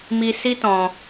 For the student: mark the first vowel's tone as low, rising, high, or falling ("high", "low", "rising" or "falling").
high